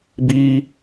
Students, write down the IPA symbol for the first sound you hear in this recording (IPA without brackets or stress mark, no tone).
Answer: b